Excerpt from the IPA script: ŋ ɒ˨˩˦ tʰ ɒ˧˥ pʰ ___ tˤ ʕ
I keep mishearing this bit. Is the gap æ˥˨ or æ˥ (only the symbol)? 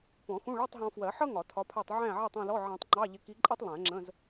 æ˥˨